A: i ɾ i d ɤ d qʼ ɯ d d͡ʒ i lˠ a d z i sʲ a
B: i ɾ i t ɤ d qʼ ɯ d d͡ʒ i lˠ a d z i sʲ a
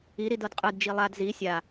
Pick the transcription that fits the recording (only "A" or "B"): A